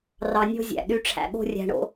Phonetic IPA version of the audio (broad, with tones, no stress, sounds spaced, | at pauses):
r ɑ˧ nʲ o̤˦ zʲ æ̰˨ ɗ y˧ ʈ͡ʂʰ æ̰˨ ɠ o̤˦ rʲ æ̤˧ ɳ o̰˧